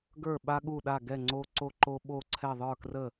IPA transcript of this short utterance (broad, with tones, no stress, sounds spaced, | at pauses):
ɡ ə˞˥˩ ɓ a˥ ɠ u˥˩ ɗ a˥˩ ɡ ɛ˥˩ ŋ͡ǀ o˥ ǀ o˥ ǃ o˥ ɓ o˥˩ ǀʰ ɛ˥˩ ðˤ ə˞˥˩ k r ə˥˩